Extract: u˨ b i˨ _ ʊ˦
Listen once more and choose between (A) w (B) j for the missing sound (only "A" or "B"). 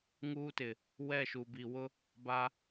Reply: A